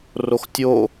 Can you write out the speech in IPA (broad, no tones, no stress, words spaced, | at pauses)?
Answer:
roxtʲo